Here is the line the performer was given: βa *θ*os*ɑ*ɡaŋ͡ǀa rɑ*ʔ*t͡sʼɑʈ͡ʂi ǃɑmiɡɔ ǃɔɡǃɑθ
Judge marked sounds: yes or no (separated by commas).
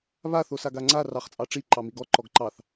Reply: yes, no, no